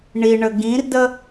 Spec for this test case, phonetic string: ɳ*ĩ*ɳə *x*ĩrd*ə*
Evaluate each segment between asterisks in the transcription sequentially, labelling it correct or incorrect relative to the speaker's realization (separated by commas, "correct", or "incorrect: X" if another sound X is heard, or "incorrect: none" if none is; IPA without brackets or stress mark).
incorrect: i, incorrect: ɡ, correct